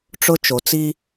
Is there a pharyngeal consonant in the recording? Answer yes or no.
no